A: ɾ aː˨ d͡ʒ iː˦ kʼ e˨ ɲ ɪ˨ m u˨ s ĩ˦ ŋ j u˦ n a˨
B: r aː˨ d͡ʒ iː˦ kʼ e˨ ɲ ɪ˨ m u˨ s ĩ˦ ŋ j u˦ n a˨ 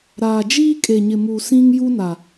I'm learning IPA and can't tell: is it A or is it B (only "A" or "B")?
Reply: A